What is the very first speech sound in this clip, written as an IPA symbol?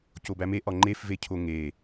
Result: c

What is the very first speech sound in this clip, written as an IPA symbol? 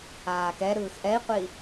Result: aː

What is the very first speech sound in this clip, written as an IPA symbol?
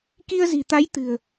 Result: k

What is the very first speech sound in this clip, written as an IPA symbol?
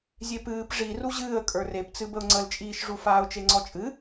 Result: zʲ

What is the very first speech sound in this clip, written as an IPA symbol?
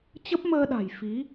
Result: t͡ɕ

